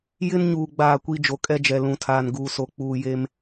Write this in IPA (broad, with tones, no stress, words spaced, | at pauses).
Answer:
jɪ˦nɲuː˨ ɡ͡baː˦˨kʷi˦ d͡ʒo˨kʼɛ˦d͡ʒɛ˨ lũ˨tʰaː˨n ɡuː˨so˨ k͡puː˨je˨m